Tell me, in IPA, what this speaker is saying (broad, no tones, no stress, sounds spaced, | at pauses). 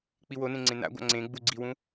k͡p i w o n ẽ ŋ͡ǀ ẽ n a̰ ɡʷ a̰ ŋ͡ǀ ẽ ɡ͡b u ɡ͡ǀ i w ũ